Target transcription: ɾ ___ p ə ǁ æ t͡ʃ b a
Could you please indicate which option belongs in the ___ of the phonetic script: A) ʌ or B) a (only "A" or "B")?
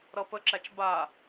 A